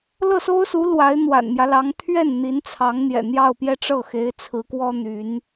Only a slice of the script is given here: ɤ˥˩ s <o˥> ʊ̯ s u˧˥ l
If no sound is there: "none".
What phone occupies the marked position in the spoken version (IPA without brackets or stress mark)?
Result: o˥